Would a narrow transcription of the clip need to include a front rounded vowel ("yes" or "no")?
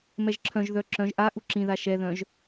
yes